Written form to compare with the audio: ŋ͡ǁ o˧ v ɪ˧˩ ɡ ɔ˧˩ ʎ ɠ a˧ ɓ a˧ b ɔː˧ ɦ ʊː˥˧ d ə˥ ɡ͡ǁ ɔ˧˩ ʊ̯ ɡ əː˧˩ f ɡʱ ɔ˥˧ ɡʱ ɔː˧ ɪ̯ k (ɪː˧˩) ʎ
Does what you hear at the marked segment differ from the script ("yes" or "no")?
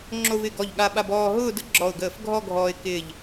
no